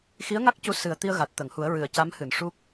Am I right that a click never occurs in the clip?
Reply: yes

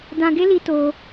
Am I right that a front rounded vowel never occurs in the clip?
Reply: yes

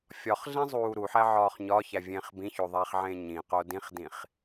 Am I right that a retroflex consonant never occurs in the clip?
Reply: yes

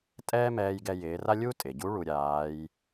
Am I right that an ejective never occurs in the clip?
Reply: no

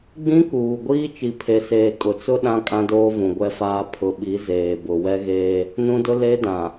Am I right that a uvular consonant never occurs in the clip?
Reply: yes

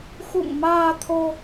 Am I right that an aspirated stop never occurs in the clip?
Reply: no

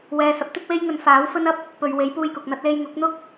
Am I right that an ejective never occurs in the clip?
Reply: yes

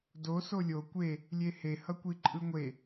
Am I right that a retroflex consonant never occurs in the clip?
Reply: yes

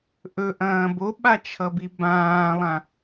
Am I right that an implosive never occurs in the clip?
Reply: no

